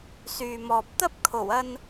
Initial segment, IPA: s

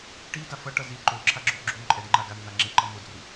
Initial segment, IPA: ʈ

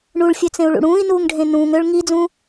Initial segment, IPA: ɳ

